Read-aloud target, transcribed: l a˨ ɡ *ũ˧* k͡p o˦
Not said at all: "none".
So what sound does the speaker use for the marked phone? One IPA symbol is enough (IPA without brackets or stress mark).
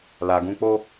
ũ˧